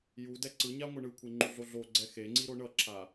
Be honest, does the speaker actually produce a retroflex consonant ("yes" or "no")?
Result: yes